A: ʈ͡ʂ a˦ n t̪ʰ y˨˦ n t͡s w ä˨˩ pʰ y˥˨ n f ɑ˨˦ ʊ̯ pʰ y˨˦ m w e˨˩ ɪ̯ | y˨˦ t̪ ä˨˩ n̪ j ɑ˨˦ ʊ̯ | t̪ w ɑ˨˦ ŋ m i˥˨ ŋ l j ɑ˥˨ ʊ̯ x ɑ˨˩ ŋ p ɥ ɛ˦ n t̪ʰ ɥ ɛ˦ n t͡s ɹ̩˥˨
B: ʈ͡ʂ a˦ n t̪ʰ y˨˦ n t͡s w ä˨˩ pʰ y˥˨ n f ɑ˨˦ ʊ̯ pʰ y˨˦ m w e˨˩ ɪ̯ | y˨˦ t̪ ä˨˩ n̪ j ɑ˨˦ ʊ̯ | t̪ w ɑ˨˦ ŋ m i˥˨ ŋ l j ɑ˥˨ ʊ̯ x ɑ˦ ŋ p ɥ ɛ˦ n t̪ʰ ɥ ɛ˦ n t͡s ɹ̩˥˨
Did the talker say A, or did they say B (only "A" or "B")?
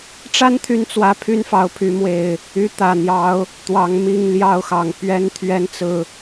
A